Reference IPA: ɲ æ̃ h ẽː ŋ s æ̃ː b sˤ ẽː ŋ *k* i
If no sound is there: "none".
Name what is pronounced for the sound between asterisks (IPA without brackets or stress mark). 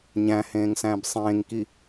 k